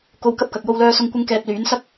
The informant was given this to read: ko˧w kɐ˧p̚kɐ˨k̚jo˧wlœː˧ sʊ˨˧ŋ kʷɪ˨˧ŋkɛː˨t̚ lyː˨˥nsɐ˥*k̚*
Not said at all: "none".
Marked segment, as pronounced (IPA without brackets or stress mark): k̚